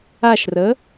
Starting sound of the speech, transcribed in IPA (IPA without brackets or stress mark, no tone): a